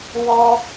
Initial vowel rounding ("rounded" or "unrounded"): rounded